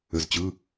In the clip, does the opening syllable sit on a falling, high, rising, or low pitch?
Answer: low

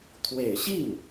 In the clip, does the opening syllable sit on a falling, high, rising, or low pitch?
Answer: low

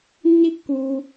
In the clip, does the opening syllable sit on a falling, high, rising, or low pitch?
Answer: high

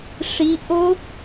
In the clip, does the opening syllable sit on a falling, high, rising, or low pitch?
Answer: rising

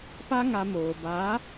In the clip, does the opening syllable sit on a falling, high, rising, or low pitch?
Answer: high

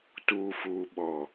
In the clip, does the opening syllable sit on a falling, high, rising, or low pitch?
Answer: low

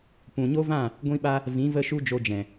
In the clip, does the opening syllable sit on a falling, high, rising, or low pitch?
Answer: low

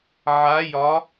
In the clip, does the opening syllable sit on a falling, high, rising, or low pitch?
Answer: rising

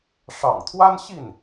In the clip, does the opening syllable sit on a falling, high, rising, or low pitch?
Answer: low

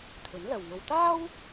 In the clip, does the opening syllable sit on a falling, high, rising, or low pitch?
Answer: rising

